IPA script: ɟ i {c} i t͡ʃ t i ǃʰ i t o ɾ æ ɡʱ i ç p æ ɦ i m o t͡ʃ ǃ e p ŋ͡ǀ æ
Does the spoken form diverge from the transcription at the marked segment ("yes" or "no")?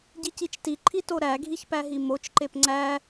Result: no